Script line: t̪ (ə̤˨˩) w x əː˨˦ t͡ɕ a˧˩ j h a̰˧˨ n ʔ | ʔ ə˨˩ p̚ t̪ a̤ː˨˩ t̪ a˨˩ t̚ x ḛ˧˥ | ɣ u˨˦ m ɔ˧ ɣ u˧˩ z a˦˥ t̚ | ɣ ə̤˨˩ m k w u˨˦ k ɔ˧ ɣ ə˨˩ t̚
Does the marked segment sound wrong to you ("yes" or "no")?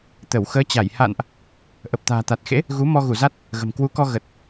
yes